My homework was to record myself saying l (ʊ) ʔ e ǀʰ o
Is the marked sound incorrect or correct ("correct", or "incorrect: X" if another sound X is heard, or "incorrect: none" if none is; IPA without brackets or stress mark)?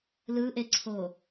incorrect: ɯ